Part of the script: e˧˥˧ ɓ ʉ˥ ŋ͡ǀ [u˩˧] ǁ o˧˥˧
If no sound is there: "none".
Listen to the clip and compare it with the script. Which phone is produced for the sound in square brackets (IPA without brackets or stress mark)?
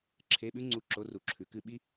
u˧˥˧